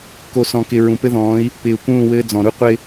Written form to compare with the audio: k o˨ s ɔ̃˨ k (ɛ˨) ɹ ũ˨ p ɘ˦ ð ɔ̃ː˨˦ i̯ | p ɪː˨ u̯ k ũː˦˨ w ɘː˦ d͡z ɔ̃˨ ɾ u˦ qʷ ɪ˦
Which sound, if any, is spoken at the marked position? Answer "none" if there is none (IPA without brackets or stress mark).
ɪ˨